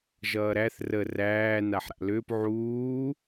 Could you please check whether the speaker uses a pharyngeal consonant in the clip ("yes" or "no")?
yes